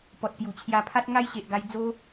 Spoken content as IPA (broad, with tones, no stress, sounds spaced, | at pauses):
p ɔ˨ t̚ p j u˨˩ t͡ɕʰ j a˧ pʰ a˦ t̚ ŋ a˦ j ɕ e˨ ʔ ɡ a˧ j d͡z o˧